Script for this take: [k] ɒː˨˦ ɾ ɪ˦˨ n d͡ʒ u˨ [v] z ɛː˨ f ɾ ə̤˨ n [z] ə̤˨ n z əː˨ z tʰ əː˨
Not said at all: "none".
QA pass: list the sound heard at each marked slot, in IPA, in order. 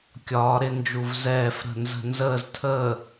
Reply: kʲ, v, z

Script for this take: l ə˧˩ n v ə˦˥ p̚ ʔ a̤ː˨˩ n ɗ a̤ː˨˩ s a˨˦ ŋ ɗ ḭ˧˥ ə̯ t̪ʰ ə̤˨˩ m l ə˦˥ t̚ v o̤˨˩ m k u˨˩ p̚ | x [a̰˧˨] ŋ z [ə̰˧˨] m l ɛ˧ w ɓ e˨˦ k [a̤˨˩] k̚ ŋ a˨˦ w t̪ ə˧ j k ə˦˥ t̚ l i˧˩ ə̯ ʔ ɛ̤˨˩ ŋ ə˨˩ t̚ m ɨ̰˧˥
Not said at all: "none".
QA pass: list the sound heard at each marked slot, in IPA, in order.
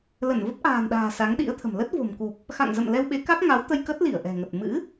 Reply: a̰˧˨, ə̰˧˨, a˦˥

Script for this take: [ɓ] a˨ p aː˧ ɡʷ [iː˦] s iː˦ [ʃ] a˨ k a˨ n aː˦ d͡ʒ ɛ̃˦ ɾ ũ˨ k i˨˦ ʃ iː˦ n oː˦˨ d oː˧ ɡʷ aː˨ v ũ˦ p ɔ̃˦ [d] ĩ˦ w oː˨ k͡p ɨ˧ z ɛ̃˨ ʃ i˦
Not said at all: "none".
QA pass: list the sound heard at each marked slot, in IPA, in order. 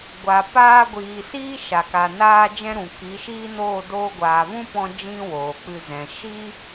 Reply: ɡʷ, iː˨, ʃ, d͡ʒ

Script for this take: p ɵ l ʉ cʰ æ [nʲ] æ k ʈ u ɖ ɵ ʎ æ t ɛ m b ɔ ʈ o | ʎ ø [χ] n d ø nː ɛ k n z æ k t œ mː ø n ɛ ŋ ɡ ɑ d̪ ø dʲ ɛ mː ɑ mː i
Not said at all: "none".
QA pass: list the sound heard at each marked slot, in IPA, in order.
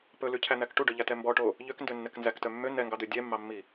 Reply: n̪, k

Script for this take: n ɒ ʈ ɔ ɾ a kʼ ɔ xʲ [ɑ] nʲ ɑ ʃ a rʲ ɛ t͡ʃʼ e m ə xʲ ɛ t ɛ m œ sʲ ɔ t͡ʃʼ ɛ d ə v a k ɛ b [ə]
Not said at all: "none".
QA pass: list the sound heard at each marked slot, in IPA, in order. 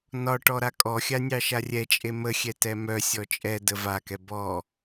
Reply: a, ɔ

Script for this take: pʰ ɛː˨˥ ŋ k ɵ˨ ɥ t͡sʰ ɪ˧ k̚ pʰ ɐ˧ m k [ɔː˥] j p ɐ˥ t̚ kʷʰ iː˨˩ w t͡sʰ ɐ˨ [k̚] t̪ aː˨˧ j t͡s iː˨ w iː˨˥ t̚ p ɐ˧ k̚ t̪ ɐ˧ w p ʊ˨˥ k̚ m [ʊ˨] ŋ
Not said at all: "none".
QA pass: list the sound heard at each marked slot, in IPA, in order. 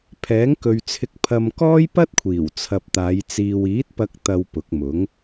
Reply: ɔː˥, p̚, ʊ˨˥

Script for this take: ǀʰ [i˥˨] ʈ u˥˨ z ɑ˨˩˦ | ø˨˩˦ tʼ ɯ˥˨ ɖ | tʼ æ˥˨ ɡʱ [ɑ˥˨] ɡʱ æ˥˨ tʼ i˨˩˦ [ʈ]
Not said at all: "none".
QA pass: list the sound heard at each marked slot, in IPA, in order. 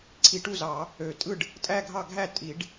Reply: i˨˩˦, ɑ˥˨, ɖ

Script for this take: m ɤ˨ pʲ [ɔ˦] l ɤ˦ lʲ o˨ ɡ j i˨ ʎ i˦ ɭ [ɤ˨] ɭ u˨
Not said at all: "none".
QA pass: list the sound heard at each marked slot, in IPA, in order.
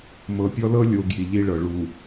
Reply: ɔ˦, ɤ˨

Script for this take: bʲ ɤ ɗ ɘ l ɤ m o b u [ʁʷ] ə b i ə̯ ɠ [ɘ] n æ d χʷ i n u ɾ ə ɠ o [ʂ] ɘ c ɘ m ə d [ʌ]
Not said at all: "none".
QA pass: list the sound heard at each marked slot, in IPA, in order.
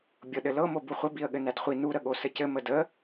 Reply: χʷ, ɘ, s, ə

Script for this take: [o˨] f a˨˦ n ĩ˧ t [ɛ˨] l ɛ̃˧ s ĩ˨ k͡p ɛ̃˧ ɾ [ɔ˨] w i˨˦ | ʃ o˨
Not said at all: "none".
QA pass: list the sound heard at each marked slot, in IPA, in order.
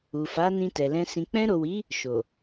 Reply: u˨, ɛ˨, o˨

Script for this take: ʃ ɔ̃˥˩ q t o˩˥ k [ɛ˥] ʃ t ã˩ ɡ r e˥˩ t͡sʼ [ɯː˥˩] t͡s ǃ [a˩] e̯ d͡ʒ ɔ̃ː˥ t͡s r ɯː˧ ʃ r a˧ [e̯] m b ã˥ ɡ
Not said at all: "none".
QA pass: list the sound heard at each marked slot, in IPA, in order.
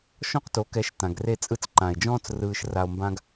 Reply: ɛ˩˥, ɯ˥˩, ã˩, o̯

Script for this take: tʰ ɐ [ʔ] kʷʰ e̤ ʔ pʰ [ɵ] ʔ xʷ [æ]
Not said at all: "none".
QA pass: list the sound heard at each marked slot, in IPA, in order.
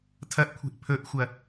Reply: ʔ, ɵ, ɐ

